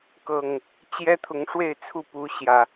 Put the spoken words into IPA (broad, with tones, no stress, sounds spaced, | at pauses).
k ɤ˨˩ ŋ | t͡ɕ j ɛ˦ t̪ʰ ʊ˨˦ ŋ ʂ w e˥˨ ɪ̯ t͡sʰ u˥˨ p u˨˦ ɕ j ä˨˩